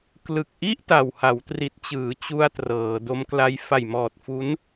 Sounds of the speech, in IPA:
k l ɯ˨˩ k̚ ʔ i˥˩ ʔ t a˨˩ w h a˩˦ w t r i˨˩ t̚ t͡ɕ ɯː˩˦ t͡ɕ u˧ a̯ t r ɤː˩˦ d o˦˥ m k l a˦˥ j f a˨˩ j m ɔː˨˩ t̚ f u˦˥ n

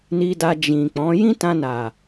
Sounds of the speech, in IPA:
n i˧ d a˧ d͡ʒ ĩ˨ k͡p ɔ̃˨˦ j ĩ˦ t ã˧ n a˨

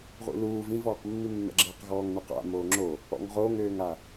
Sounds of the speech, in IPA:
ʁ ṵ l uː v ĩ v ɔː q mː i mː ɛ̰ ɡ͡ǁ ɪː q ɣ ɔː ŋ n u q a̰ m oː ŋ͡ǁ o | ɔ̰ ŋ ʁ oː ŋ øː ŋ a

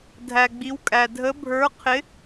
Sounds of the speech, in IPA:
dʱ æ˩ ɡ͡b i˩˧ w kʼ æ˩ dʱ ə˨˥ bʱ ə˞˨˥ qʰ ɪ˨˥

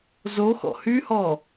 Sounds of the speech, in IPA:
z o x ɔ̰ h y h ɔ

